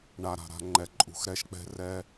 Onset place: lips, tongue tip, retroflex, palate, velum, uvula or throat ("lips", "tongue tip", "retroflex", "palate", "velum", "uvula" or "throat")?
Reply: retroflex